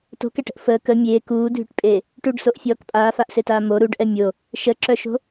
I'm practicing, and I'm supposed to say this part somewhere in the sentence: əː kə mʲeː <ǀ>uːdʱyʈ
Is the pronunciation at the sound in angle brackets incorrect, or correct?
incorrect